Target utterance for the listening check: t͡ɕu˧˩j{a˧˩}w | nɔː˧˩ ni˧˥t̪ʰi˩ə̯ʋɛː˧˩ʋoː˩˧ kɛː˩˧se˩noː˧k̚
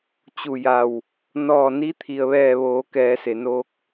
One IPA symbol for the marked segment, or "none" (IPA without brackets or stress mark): a˧˩